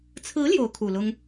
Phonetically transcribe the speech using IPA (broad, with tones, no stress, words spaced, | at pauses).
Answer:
t͡sʰɹ̩˧˥ ljo˧˥ʊ̯kʰu˨˩lʊ˥ŋ